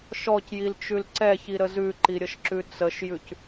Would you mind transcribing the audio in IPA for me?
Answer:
ʃ ɔ c j i l t͡ʃ ʉ l ǀ ɛ ç i ɾ ə z ʉ ǃ i ɾʲ ə ʃ ǁ ʉ t͡s ə ʃ j ʉ c

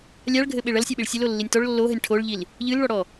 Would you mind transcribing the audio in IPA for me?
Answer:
lʲ a ɭ ɡʱ ɘ ɓ e ɭ ɐ l sʲ a ɓ i ɭ sʲ ɘ l o lː i nʲ t ɔ ɭ lː o ɦ ɘ nʲ ʈʰ o ɭ ʎ i l | ʎ ɨ l ɭ ɔ ɽ ɔ

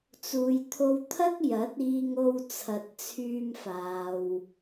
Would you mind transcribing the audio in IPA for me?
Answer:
t͡s uː˨ j t̪ʰ o˧ w t̪ʰ ɐ˥ k̚ j ɐ˨˥ t̚ iː˧ ŋ o˧ w t͡sʰ ɐ˨ t̚ t͡sʰ yː˧ m f aː˨ w

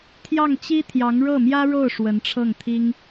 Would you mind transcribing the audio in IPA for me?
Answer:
t̪ʰ j ɑ˥˩ ŋ t͡ɕ i˥ t̪ʰ j ɑ˧˥ ŋ ɻ ɤ˥˩ m j ä˥ ɻ o˥˩ ʊ̯ ʂ w ə˧˥ n ʈ͡ʂʰ ɤ˥˩ ŋ t̪ʰ i˥ ŋ

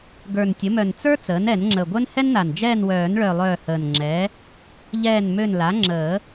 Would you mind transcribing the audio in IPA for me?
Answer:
ɡ ə˞˨˩ n tʲ ə˩˥ m œ˨˩ n t͡s ə˞˥ t͡s əː˩˥ n ɛ˨˩˦ n ŋ͡ǁ ə˨˩ ɡʷ œ˥ n h ɛ˥ n n̪ a˨˩ n d͡ʒ ɛː˦˨ n w œː˨˩˦ n ɭ œ˨˩ lˠ œː˦˨ h əː˨˩ n ŋ͡ǁ ɛː˩˥ | ʎ ɛː˦˨ n m ø˦˨ n l a˩˥ ŋ͡ǁ əː˨˩˦

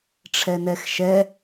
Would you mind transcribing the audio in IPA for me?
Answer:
ʈ͡ʂʰ ɛ n ɛ x ʃ ɛ

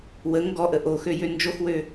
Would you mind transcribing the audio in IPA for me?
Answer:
w ə ŋ ɡ ɔ ʔ ə ʔ o x ø j ø n d͡ʒ o x w ø

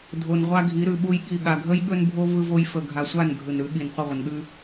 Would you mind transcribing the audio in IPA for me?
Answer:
dʱ o˨ n ʁʷ a˦ ɡʱ i˨˦ ɾ ʉ˨ ɓ u˦ j ɠ i˦˨ ɠ a˨ ɡʱ ə˦ j ɠ ɵ˦ n bʱ o˦ v ɯ˦ v o˦ j f ə˨ ɡʱ a˨ sʷ a˦˨ n ɡʱ ɯ˨ n ɾ ʉ˨˦ ɠ i˨ n qʷ ə˦˨ ʁʷ ə˨ n ɠ ʉ˦

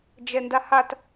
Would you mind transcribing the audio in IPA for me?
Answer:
d͡ʒ ɛ n d a h a t

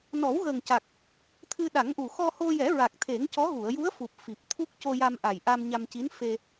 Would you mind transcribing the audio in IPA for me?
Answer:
n ɔ˨˩˦ w ɣ əː˨˩ ŋ c a˨˩ k̚ | t̪ʰ ɨ˧ ɗ a˨˩˦ ŋ ʔ u˨˩ x ɔ˧ h o˧ j ɛ˨˩˦ ɹ a˨˩ k̚ t̪ʰ e˨˩˦ ŋ c ɔ˧˥ ɣ u˨˩˨ ə̯ j u˧˥ ə̯ f u˨˩ p̚ f i˨˩ p̚ t̪ʰ u˦˥ k̚ c o˧ j a˧ m ʔ a˨˩ j ʔ a˧ m ɲ a˧ m c i˧˥ n f e˧

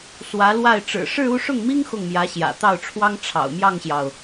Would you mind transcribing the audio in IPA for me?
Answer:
s w ä˧˥ l w a˥˩ ɪ̯ ʈ͡ʂ ɻ̩˨˩ ʂ ɻ̩˥˧ u˥˧ ʂ ʊ˥˩ ŋ m i˥ ŋ x ʊ˥˩ ŋ m j ä˧˥ ɕ j ä̰˨˩ t̪ ɑ˥˩ ʊ̯ ʈ͡ʂʰ w ɑ˥ ŋ ʈ͡ʂʰ ɑ̰˨˩ ʊ̯ m j ɑ˥˩ ŋ ɕ j ɑ˩ ʊ̯

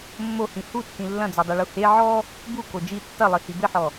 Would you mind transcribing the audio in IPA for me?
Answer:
mː o h ĩ h u tː ĩ lː ɐ̃ d͡z o dˤ u ɭ u h e ʕ ɔ | b u k o d͡ʒ i tː ɐ lˠ i h i b ɘ ħ ɔ

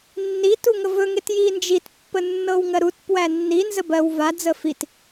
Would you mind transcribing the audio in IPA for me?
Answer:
nː i t u ŋ ə v ɵ ŋ e t j i n d͡ʒ i t pː ə nː ɤ w ŋ ɜ ɾ u t p w æ nː i n z ə b ɜ w v a d͡z ə f i t

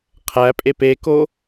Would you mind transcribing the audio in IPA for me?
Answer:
qʰ æ pʼ e p e k o

